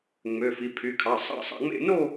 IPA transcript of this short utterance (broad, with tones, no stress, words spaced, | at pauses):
ŋ͡mø˩˧˩fi˩˧˩pʰy˩˧˩kʰɑ˩˧˩ sˤɑ̰˥˧sˤɑ̰˥˧ŋ͡mḛ˥˧ no˥˧